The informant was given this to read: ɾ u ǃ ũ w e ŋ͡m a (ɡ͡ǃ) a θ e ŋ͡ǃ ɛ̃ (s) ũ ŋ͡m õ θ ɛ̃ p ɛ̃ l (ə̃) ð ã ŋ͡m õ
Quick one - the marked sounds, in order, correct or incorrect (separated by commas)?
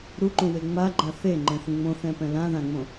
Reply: correct, incorrect, incorrect